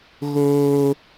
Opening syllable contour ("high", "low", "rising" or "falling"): high